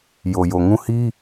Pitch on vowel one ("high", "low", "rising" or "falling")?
low